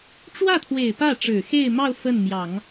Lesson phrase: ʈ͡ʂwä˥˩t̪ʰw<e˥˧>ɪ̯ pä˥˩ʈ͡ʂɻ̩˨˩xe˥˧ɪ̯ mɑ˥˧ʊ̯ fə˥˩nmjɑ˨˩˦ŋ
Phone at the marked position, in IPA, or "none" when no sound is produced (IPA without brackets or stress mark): e˨˩